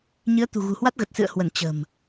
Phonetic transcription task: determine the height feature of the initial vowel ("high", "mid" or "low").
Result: high